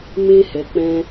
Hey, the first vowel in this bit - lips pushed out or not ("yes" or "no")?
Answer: no